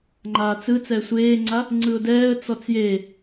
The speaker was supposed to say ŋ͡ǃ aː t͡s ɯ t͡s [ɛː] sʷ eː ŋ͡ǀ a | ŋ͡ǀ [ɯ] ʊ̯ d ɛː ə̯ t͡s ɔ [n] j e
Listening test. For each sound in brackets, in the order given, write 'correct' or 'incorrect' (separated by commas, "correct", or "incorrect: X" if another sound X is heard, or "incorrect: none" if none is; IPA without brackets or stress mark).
correct, correct, incorrect: t͡s